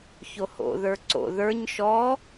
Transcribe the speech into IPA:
ç o h o̰ ð ə˞ ǀ o̰ ð ə˞ ɲ ʃ ɔ

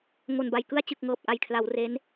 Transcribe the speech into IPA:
ŋ o˨˩ n b a˨˩ j k ɯ˧ a̯ t͡ɕ ɯ˨˩ k̚ ŋ ɤː˨˩ p̚ ʔ a˨˩ j kʰ l a˩˦ w r e˦˥ n

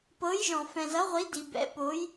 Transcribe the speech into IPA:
p ɤ˨˦ j ʒ ɔ̃˨ f ɛ̃˨ z ʌ˨˦ ʁʷ i˨˦ d i˨ b ɛ̰˨˦ p o˨˦ j

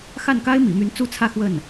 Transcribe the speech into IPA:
x a˥˩ n k a˥ ɪ̯ m ḭ˨˩ m y˧˥ n t͡s u˥ t͡sʰ ä˥˧ x w ə˥˩ n

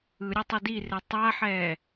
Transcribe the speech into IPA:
ɯ ɾʲ ɯ tˤ i d i r e tˤ a ħ ɛː

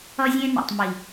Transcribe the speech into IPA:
ʌ˧ zʲ ẽ˧ n ɛ̰˨ tˤ m i˨

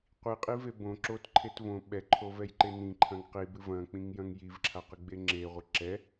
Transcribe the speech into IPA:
qʷ i qʼ i v e b õ ǁ o t ǃʰ e t v õ ɓ ɛ ǃʰ o v ɛ j ǃ e n ĩ ǃʰ ɐ̃ ŋ q i b ɨ v ɐ̃ k͡p ĩ ŋ j ɐ̃ ŋ j i v ǁʰ a q ɨ ɡ͡b e ŋ͡ǁ e ʁʷ ɘ ǁ ɛ

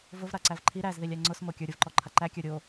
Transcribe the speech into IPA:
v ʊ v ɾ a ǀ æ v ǃʰ i ɾ æ z ð i lʲ æ ŋ͡ǀ ʊ s m o kʲ ə˞ ɾʲ ʊ v ǃ ɔ ǃʰ a ǃ æ kʲ ə˞ ɾʲ o

